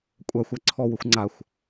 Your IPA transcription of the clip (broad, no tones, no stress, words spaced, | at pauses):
kʷʼaxʷ æǀʰɔwəxʷ ŋ͡ǀaxʷ